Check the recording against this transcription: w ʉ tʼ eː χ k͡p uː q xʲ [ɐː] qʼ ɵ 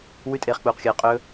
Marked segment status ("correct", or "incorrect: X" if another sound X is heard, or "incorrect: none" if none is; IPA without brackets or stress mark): correct